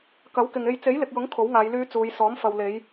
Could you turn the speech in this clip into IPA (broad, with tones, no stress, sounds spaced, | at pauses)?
k ɐ˨˥ w k ɪ˨ ŋ e˧ j t͡s e˨˥ j l ɪ˨ k̚ j ʊ˨˥ ŋ kʰ o˨˥ w ŋ aː˨˧ j l yː˨˧ t͡s uː˨˧ j s ɔː˨˥ m f ɐ˨ w l e˨˧ j